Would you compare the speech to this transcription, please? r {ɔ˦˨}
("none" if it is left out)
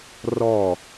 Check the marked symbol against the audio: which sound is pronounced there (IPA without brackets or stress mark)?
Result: ɔ˦˨